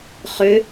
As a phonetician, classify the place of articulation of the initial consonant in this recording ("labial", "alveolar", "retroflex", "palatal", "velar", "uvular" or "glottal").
uvular